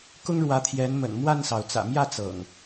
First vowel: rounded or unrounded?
rounded